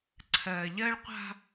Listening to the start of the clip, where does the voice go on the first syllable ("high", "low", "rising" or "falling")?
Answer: low